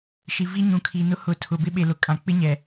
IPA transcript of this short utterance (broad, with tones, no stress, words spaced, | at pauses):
ʃi˨vi˦ ɲũ˨kʰiː˨nʊ˦ hʊ˨˦tʰʊ˨bɪ˦ ɓe˨lʊ˨ kʼã˨k͡pɪ˦ɲɛ˨